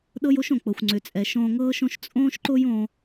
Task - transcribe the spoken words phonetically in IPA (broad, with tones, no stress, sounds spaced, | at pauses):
ɗ ɤ˦ j o˦ ʃ õ˨ k͡p ɤ˨ xʷ ŋ͡ǀ ʏ˨ t͡sʼ ɛ˨ ʃ õː˧ ŋ ɤː˦ ʃ õ˦ ʃ t͡sʼ õː˦ ʃ ǃ o˦ j õ˧